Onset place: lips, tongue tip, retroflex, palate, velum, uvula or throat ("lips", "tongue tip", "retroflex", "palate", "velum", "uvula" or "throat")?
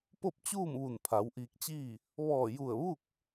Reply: lips